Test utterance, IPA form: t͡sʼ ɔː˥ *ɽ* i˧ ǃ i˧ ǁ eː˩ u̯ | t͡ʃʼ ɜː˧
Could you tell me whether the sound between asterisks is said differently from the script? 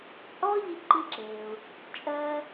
yes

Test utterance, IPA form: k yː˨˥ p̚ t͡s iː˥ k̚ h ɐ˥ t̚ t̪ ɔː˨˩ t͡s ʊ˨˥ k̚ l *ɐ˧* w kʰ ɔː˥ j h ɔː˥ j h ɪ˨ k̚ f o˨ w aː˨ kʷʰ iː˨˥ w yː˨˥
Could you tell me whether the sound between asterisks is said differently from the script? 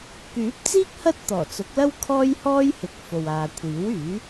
yes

